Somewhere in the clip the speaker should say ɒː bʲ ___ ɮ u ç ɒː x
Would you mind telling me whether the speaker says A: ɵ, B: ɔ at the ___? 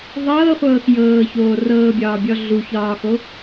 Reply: B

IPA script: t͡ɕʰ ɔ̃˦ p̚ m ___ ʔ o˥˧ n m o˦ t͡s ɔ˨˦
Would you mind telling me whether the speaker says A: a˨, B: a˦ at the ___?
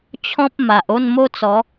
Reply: A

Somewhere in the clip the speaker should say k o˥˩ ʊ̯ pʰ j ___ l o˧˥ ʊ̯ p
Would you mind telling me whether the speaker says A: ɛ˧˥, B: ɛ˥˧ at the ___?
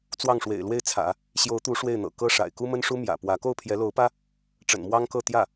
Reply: A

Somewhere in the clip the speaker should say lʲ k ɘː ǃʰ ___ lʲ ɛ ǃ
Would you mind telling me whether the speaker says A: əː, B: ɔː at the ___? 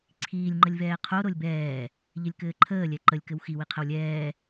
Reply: A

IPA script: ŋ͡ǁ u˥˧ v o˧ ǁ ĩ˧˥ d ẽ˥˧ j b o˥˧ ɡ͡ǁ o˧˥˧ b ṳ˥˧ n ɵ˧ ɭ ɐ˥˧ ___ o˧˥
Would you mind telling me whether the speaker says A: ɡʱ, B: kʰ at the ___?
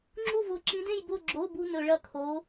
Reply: B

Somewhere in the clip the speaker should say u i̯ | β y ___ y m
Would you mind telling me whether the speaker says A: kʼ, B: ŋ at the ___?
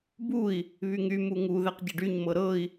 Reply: B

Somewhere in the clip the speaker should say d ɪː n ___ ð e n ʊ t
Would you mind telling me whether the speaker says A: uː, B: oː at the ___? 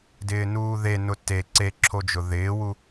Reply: A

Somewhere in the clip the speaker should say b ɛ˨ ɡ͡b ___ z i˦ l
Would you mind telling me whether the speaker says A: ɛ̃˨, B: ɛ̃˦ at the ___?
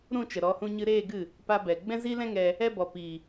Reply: B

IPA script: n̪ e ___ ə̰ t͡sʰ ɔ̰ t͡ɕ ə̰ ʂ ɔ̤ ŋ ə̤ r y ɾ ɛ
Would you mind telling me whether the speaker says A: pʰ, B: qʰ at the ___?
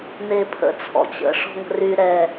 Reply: A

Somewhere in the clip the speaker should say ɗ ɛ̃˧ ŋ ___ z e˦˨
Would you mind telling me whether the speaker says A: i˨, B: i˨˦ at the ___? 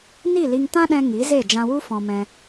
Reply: B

